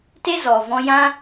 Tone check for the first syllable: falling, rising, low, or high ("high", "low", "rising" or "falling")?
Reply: high